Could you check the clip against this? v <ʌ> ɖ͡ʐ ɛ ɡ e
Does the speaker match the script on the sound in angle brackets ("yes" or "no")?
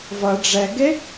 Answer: yes